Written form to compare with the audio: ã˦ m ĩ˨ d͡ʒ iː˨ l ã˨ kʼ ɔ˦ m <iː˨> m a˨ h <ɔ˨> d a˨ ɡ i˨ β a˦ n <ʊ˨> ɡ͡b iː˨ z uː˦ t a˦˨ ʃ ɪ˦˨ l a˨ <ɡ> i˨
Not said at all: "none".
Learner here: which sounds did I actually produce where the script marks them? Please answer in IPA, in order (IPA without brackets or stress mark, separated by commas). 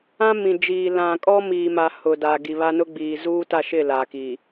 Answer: iː˨, ʊ˨, ʊ˦, k